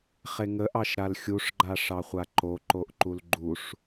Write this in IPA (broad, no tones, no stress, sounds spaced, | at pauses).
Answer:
χ e ŋ ə ʔ ɑ ʃ ɾ a l xʲ u ʂ ɡ͡ǃ a ʂ ɑ χʷ a ǃ o ǃ o ʔ ǃ u l ɡ͡ǃ u ʂ